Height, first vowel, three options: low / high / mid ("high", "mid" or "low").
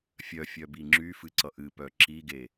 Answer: mid